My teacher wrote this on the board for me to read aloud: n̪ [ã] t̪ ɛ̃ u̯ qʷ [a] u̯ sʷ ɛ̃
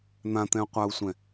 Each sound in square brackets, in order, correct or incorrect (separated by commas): correct, correct